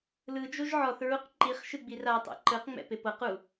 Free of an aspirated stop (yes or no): yes